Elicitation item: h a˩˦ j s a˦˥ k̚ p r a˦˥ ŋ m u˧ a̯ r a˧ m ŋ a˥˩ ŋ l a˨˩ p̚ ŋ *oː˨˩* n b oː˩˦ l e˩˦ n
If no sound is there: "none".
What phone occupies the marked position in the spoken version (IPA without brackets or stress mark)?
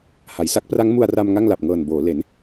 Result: ɤː˨˩